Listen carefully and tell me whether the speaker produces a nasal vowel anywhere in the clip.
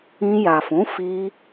yes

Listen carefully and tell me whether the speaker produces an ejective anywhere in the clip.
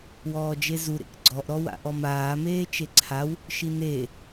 no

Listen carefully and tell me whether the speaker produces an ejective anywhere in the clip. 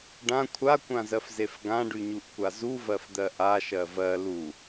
no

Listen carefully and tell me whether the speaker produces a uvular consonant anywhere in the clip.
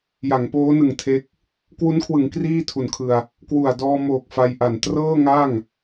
no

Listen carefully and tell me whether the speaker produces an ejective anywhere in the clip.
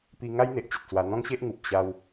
no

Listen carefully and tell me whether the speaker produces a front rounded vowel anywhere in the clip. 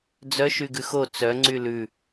yes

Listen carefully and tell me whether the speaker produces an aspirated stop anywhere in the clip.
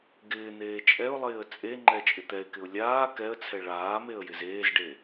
yes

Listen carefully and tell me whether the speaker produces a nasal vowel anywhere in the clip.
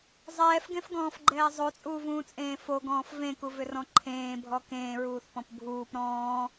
yes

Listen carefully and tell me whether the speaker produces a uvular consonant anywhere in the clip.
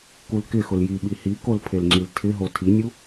no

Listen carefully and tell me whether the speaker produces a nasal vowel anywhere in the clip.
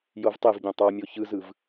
yes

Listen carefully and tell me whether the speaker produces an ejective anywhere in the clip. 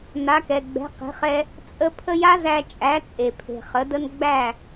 yes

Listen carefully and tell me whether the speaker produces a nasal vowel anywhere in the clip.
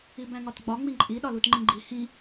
yes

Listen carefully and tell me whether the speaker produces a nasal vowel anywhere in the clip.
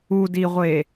no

